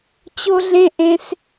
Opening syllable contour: high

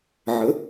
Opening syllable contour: rising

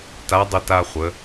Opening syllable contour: rising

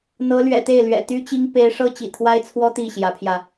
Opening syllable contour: rising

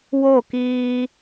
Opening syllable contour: falling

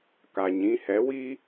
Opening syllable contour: low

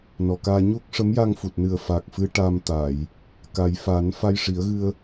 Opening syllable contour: low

